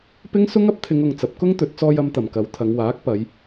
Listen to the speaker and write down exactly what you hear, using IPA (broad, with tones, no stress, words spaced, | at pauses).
pɪ˥ŋsʊ˥ŋ ɐ˨˥p̚t̪ʰɪ˨˧ŋʊ˨ŋ t͡sɐ˨˥p̚kʊ˥ŋ t̪ɵ˨˥t̚ t͡sɔː˧jɐ˨˧mt̪ɐ˨˩m kɐ˨˧wt̪ʰɐ˨˧ŋwaː˨˥k̚pɐ˨˧j